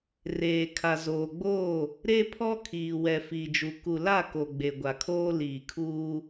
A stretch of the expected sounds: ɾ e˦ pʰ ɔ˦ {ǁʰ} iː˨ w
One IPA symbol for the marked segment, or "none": kʰ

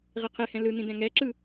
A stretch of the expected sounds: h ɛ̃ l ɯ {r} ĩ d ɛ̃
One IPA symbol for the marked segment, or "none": n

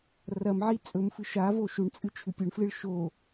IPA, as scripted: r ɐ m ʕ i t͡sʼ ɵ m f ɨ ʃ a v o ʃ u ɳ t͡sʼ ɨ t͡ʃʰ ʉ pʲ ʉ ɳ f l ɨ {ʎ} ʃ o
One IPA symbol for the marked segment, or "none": ɭ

